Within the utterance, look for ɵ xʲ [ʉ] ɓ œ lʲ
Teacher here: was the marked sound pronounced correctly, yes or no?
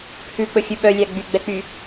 yes